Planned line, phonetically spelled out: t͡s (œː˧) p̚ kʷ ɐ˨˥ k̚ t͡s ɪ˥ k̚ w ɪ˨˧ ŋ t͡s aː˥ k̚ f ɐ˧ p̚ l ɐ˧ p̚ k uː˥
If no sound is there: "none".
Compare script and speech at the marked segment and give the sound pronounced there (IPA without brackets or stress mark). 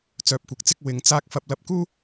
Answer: œː˧